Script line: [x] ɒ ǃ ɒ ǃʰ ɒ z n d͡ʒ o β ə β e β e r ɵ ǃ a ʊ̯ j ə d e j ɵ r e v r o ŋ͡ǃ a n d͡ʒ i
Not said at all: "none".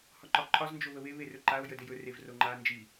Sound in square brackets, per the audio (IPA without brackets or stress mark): h